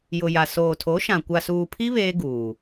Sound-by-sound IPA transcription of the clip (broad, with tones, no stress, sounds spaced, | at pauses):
j ʊ˨ j a˨ s oː˨ tʰ o˨˦ ʃ ã˨ kʷ a˨ s uː˨ pʰ i˦ β eː˦ ɡ uː˨